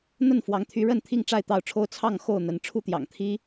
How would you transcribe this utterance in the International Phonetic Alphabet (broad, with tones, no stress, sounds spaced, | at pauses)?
n̪ ə˥˨ n f w ɑ˨˦ ŋ t̪ʰ y˨˦ ɻ ə˥˨ n t̪ʰ i˥˨ ŋ ʈ͡ʂ a˥˨ ɪ̯ t̪ ɑ˥˨ ʊ̯ ʈ͡ʂʰ o˦ ʊ̯ t͡sʰ ɑ˥˨ ŋ x o˥˨ ʊ̯ n̪ ə˨˦ n ʈ͡ʂʰ u˥˨ t̪ j ɑ̰˨˩ ŋ t̪ʰ i˦